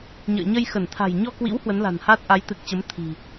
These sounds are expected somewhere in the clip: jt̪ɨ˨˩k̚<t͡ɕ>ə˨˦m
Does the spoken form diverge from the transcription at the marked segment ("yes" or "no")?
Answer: no